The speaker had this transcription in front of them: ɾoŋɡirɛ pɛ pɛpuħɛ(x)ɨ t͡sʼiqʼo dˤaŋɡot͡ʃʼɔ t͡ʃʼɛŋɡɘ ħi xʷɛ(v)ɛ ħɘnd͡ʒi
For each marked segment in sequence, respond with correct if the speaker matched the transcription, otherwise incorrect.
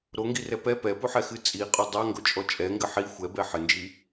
correct, incorrect: b

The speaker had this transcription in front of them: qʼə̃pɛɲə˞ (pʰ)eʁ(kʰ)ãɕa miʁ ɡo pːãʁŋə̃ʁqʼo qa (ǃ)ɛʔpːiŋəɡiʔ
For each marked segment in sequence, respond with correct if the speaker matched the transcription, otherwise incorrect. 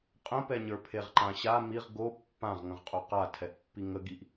correct, incorrect: ǃ, incorrect: tʰ

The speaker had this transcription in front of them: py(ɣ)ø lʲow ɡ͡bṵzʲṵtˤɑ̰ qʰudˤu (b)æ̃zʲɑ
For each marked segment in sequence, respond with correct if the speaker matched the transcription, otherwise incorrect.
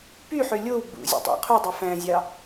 incorrect: ħ, incorrect: f

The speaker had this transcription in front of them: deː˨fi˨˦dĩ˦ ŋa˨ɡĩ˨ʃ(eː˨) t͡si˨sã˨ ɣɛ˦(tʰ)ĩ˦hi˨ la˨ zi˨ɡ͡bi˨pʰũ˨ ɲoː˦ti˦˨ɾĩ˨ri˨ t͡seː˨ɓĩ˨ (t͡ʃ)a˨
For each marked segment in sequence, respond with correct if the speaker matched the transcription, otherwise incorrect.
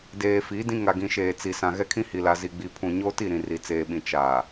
correct, incorrect: kʰ, correct

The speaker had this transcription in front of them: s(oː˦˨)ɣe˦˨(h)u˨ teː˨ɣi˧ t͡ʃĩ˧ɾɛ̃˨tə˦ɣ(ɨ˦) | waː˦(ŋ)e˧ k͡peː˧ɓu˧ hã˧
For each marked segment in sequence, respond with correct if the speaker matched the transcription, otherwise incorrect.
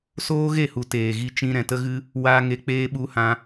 incorrect: oː˦, correct, correct, correct

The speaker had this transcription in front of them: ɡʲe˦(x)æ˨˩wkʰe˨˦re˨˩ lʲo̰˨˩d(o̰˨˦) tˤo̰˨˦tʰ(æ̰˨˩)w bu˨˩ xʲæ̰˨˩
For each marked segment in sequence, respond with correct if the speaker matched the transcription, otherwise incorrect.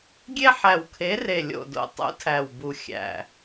incorrect: ħ, incorrect: o̰˨˩, incorrect: æ˨˩

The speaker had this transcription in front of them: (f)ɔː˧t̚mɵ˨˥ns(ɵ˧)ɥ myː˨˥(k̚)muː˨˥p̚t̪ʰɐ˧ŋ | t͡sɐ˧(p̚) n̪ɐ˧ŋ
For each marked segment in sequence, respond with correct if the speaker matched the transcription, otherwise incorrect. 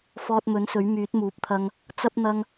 correct, incorrect: ɵ˨˥, incorrect: t̚, correct

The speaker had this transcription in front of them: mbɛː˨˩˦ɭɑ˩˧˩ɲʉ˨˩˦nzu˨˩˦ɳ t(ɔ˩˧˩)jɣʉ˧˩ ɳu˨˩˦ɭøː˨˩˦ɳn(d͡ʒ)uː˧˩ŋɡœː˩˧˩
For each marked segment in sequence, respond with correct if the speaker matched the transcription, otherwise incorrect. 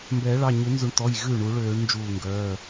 correct, correct

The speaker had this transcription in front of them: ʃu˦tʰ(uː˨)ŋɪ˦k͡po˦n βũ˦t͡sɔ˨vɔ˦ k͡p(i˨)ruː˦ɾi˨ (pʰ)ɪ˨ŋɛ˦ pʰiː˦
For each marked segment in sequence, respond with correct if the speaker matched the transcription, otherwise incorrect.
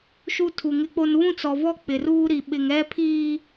incorrect: u˨, incorrect: ɪ˨, incorrect: ɓ

